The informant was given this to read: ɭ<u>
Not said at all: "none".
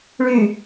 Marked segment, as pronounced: y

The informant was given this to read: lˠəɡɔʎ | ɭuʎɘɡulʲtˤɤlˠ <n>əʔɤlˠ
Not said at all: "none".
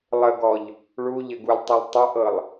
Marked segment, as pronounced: tˤ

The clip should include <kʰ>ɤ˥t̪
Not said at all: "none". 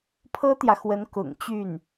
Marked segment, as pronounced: pʰ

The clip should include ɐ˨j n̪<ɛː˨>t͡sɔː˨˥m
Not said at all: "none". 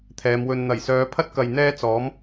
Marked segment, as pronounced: ɛː˥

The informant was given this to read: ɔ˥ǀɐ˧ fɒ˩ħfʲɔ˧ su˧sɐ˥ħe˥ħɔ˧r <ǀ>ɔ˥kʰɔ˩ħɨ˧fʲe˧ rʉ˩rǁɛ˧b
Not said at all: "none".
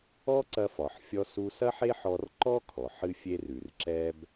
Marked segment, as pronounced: ǃ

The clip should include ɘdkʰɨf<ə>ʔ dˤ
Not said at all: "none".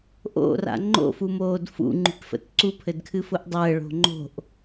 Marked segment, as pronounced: ʊ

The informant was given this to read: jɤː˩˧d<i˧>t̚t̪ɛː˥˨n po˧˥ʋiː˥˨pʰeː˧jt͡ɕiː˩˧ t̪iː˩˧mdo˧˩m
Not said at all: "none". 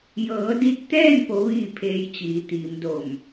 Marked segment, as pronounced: i˧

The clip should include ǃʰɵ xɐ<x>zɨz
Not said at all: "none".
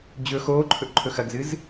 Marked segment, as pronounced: ɡ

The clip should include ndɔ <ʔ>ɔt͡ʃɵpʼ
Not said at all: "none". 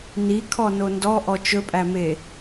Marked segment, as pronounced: ʔ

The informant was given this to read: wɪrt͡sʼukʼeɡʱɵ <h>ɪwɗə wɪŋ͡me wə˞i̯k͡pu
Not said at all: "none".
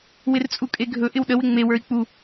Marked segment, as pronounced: ʔ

